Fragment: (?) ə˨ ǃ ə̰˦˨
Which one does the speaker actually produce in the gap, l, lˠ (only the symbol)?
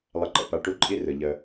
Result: lˠ